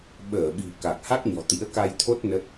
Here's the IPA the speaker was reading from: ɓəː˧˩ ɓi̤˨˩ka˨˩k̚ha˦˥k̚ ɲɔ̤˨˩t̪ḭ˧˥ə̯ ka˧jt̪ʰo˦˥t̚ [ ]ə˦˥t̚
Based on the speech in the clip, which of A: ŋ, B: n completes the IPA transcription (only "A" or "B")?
B